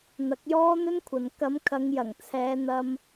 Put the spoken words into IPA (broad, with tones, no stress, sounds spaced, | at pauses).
n̪ ɐ˨˥ k̚ j ɔː˥ n̪ ɵ˥ n kʷʰ ɐ˨ n k ɐ˨˧ m kʰ ɐ˨˧ ŋ j ɐ˨˩ ŋ t͡sʰ ɛː˨˧ n̪ ɐ˧ m